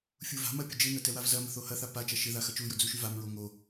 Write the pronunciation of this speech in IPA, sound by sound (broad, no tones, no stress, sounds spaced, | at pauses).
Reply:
fʲ u v a̤ m ɐ pʲ ʊ d͡ʒ ɪ n ɐ t ɛ w a v z ɐ m ə̤ θ o h ɐ θ a p a t͡ʃ ɐ ʃ ɪ ð a x ɐ t͡ʃ u j ʊ d͡z u ʃ y v a m ɹ o ŋ o